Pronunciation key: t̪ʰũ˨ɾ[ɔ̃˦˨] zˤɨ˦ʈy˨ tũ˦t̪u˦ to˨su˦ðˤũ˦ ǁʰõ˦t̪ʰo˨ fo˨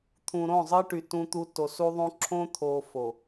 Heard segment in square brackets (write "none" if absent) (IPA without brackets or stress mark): õ˦˨